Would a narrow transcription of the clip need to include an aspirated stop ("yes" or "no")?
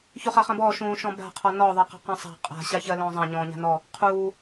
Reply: yes